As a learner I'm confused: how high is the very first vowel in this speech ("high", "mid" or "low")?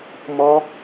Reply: mid